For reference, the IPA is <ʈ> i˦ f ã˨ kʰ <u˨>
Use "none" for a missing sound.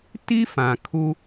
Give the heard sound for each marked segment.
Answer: t, u˦

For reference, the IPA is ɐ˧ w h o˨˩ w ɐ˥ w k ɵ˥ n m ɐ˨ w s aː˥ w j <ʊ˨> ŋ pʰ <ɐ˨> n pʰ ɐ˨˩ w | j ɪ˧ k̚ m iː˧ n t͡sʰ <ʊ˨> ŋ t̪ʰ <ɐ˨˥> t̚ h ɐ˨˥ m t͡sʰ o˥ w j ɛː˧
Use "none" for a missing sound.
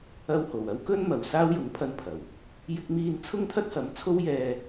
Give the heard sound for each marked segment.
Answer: ʊ˨˥, ɐ˧, ʊ˥, ɐ˥

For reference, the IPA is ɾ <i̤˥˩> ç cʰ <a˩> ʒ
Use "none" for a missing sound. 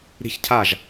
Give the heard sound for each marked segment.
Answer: i̤˥˩, a˥˩

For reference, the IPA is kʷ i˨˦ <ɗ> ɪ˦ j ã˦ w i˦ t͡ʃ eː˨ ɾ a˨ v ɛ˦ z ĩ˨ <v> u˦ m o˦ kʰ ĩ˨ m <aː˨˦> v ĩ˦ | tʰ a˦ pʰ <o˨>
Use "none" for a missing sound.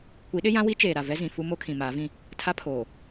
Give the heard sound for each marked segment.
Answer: ɗ, f, aː˨˦, oː˨

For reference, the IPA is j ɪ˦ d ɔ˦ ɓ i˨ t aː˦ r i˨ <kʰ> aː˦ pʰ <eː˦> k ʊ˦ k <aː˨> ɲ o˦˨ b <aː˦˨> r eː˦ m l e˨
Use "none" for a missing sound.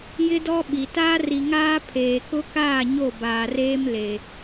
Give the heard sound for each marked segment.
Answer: ŋ, eː˨, aː˦˨, aː˨

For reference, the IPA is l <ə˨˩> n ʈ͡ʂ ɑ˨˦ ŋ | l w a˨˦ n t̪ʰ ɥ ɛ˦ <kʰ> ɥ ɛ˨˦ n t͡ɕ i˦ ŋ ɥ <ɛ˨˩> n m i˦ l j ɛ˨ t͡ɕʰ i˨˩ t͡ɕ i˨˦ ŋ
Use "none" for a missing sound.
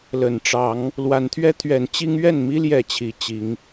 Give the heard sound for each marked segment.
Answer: ə˨˩, t̪ʰ, ɛ˥˨

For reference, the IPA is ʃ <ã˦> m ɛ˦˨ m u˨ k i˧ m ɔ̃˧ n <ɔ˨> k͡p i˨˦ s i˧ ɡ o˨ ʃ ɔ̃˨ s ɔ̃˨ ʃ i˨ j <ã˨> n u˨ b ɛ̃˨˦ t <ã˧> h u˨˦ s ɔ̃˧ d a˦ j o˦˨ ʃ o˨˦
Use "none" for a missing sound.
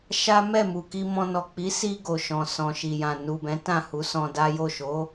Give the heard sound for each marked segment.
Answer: a˦, ɔ˨, ã˨, ã˦˨

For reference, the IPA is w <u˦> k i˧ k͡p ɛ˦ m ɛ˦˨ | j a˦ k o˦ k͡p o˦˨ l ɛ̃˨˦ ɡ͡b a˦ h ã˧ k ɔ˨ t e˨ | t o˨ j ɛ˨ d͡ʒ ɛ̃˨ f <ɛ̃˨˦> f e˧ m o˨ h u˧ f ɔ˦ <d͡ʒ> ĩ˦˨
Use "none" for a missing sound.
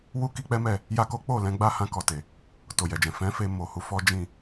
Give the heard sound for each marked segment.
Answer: u˦, ɛ̃˨˦, d͡ʒ

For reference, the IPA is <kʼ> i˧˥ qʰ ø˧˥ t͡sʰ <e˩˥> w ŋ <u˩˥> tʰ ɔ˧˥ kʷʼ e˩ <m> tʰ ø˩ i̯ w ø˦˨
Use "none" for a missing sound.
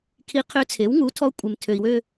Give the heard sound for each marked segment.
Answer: kʰ, e˩˥, u˩˥, m

